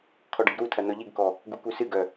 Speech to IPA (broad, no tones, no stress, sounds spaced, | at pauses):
kʰ ɔ ɖ ɨ ɡ ɾ u tʰ ɐ n ɔ ʎ i ɡ k ɔ | ɡ u k u s ɨ ɡ œ